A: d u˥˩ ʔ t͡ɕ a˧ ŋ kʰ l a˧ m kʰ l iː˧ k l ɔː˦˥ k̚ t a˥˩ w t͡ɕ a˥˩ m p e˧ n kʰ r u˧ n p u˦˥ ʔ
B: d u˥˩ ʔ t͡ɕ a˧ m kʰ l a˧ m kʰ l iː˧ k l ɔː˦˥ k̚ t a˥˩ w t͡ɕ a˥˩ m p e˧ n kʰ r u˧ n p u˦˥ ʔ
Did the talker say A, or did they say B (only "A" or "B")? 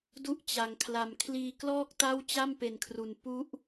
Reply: A